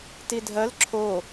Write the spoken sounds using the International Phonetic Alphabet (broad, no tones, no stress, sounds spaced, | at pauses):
t i dʱ ɜ l ǁʰ o